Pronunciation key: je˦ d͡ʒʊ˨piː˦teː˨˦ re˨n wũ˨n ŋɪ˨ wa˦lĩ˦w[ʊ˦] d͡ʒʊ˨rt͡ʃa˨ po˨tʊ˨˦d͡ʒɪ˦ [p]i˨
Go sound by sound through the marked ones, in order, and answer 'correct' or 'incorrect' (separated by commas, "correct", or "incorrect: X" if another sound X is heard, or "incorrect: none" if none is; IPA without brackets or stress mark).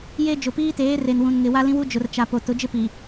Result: incorrect: u˦, correct